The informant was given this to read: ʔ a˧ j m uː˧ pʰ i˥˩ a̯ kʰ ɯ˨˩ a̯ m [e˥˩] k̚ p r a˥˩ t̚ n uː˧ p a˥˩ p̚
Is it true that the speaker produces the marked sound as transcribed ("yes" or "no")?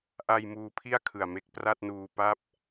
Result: yes